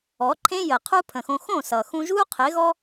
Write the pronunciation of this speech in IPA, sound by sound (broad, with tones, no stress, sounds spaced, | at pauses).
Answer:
ɔ˨˦ ǃʰ ẽ˦ j ə˨ qʰ u˦ pʰ ə̃˨ x õ˧ x õ˦˨ s ʌ˨ x ũ˧ ʒ u˦ qʰ ɪ˨˦ ɣ ɔ˦